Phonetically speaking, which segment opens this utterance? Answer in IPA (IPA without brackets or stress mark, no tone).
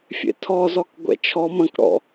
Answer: fʲ